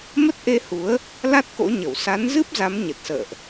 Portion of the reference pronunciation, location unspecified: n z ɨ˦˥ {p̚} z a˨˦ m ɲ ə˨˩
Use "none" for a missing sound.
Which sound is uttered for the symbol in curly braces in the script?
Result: p̚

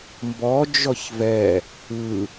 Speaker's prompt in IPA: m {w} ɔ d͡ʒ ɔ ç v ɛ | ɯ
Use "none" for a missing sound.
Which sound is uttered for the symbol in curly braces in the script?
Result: b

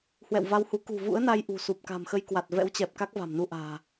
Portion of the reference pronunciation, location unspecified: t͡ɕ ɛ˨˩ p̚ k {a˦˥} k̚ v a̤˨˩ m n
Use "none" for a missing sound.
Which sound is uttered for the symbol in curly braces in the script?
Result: a˦˥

